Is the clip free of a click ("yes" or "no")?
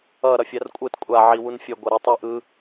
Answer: yes